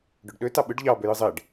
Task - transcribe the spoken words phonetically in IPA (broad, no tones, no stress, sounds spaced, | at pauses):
ɖ ø ɖ ɗ ø t ɑ ɓ ɯ ɖ ʎ ɑ b ø j ɯ zˤ e ɖ